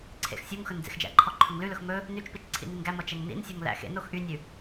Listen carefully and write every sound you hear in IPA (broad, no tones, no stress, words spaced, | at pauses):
ǀʰḛxsʲuŋxɵn d͡zḛxd͡ʒæ̰ǃʰɔ ǃʰɵŋlʉlɵx mɵ | nyt͡ʃpit͡ʃ ǀʰḭninɡæmɔ t͡ʃɛŋnḭnsʲɵŋ læ̰xḛnox ʔynʲʉ